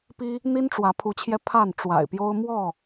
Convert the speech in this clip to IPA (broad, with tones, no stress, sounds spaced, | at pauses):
p i˦ | n̪ i˦ n ʈ͡ʂ w ä˨˦ pʰ u˨˦ t͡ɕʰ j ɛ˧ pʰ a˥˨ n ʈ͡ʂ w a̰˨˩ ɪ̯ p j o˦ ʊ̯ m w ɔ˥˨